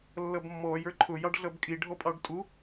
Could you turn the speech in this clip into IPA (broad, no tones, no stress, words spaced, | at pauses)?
lːʌbmːɔj ə˞ǃʰʊ jɑɖɮʌbkʼi ɖʱɔpʼɑɖtʼu